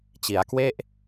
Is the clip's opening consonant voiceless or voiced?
voiceless